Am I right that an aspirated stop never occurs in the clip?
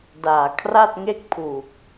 no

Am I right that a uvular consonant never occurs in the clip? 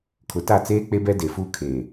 yes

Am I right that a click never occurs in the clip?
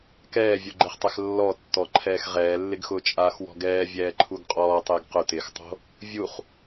no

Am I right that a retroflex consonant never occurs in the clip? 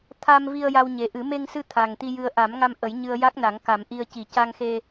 yes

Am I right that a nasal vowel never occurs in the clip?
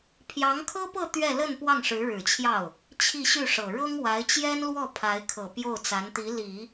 yes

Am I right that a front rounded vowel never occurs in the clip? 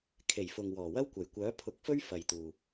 no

